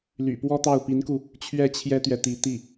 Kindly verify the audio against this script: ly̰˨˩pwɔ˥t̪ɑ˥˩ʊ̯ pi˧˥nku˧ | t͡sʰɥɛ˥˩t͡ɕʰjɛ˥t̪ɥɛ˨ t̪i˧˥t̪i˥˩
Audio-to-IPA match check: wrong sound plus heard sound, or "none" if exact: t͡sʰ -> t͡ɕʰ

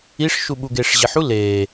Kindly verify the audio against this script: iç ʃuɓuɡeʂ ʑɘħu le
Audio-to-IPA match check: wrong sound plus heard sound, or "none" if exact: ç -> ʂ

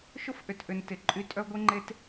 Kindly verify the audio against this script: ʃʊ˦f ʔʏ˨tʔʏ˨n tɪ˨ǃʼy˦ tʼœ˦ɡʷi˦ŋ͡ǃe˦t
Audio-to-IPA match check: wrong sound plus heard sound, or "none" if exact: none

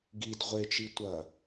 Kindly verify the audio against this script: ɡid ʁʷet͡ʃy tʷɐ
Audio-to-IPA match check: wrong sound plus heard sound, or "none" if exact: y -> i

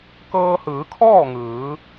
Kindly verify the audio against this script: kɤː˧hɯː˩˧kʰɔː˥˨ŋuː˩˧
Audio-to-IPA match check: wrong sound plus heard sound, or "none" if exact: uː˩˧ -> ɯː˩˧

